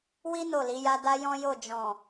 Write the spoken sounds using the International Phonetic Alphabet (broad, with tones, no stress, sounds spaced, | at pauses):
w i˦ n o˦˨ l i˨˦ j a˦ d a˦ j ɔ̃˦ j o˦˨ d͡ʒ ɔ̃˨